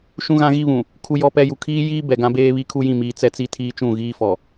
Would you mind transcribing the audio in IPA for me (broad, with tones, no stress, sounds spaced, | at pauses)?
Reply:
ʃ ũ˦ ɣ ã˦ ɣ i˦ β ũ˨ | kʰ u˦ j ɔ˦ p ɛ˦ j u˨ kʰ iː˦ j iː˦ b ɛ˨ ɡ ã˦ b eː˦ β i˦ kʰ u˦ j ĩ˦˨ m iː˨ t͡s ɛ˦ t͡s i˦ tʰ iː˦ t͡ʃ ũ˦˨ ɣ iː˦ f ɔ˨